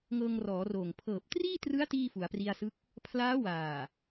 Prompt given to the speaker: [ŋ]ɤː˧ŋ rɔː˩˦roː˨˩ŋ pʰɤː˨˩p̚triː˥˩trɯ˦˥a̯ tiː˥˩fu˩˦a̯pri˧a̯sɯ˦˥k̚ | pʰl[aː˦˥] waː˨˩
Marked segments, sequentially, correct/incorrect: correct, correct

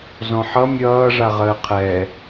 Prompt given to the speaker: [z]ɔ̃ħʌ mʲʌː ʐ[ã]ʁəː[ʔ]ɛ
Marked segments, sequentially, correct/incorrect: correct, incorrect, incorrect

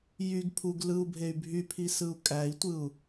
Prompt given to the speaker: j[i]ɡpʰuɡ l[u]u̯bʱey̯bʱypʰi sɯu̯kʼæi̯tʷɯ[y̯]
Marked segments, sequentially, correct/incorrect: incorrect, incorrect, incorrect

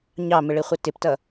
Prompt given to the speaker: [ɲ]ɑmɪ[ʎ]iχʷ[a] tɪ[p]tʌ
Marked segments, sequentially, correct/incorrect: correct, incorrect, incorrect, correct

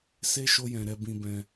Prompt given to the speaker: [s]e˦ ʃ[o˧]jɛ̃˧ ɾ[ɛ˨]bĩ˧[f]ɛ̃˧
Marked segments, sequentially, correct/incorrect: correct, incorrect, incorrect, incorrect

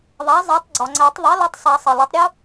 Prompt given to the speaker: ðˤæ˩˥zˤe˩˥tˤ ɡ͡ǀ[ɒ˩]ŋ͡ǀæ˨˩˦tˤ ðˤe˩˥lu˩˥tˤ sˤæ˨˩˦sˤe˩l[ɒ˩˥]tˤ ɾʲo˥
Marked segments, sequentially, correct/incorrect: correct, correct

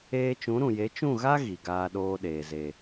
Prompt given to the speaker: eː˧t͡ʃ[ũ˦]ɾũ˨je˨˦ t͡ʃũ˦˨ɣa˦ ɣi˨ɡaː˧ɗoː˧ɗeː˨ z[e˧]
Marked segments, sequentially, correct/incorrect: incorrect, incorrect

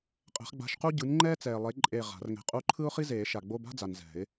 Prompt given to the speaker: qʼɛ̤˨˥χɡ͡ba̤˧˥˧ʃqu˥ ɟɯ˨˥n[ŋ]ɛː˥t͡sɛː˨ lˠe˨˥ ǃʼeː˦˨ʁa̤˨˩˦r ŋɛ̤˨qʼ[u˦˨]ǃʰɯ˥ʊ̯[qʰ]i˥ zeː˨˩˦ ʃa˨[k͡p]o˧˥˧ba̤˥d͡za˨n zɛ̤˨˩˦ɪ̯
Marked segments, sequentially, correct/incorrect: incorrect, incorrect, incorrect, incorrect

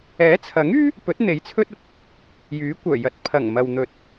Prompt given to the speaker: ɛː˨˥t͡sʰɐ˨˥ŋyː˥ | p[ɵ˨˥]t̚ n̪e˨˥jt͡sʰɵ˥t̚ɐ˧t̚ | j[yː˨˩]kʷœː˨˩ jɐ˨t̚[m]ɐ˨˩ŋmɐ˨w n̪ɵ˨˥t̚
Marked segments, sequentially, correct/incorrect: correct, incorrect, incorrect

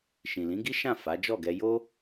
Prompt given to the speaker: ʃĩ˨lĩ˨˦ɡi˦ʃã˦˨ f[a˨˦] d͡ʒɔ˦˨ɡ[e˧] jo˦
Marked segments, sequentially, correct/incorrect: correct, incorrect

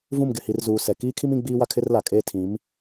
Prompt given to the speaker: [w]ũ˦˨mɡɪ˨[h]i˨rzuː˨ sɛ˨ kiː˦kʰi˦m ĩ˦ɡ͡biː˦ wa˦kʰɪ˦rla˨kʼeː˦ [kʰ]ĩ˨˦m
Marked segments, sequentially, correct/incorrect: incorrect, correct, incorrect

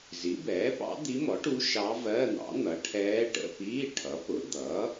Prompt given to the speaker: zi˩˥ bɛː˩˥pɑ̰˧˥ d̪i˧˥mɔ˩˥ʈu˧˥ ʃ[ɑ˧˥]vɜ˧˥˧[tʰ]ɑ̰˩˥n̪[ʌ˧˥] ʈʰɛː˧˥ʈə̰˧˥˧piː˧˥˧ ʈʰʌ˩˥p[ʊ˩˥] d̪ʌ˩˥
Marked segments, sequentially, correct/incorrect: correct, incorrect, incorrect, correct

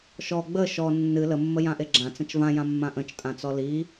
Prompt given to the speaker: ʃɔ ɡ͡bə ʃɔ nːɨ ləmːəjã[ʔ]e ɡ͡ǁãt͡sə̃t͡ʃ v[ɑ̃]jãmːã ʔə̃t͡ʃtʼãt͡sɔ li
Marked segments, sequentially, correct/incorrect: correct, incorrect

